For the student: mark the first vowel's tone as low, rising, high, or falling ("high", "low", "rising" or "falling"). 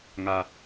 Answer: low